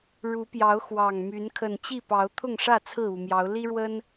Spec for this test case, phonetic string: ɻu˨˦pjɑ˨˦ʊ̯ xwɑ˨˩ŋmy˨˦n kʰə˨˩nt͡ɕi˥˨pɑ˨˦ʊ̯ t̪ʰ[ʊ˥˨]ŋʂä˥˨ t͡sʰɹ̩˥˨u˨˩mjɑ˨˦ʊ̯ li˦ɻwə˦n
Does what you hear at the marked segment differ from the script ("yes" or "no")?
no